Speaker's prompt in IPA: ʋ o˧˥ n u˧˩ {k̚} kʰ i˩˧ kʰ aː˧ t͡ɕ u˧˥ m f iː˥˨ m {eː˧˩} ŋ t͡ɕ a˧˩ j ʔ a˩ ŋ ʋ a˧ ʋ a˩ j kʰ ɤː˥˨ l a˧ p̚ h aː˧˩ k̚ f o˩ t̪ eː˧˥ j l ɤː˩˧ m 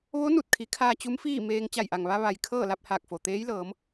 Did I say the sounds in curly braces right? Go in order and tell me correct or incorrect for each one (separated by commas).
incorrect, incorrect